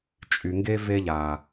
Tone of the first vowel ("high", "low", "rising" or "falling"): low